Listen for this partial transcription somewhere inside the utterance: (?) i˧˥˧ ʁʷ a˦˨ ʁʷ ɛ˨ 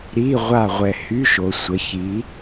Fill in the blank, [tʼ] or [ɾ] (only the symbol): ɾ